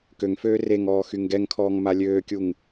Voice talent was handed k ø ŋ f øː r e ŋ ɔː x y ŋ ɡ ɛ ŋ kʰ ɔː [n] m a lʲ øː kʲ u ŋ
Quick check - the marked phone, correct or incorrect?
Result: incorrect